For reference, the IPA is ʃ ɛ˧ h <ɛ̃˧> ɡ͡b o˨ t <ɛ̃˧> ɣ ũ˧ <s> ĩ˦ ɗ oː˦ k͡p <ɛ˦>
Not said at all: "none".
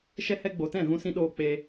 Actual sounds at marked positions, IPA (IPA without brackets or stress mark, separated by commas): ɛ˧, ɛ̃˦˨, s, e˦